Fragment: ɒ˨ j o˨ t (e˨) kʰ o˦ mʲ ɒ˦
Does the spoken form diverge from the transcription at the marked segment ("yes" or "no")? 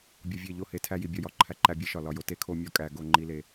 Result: yes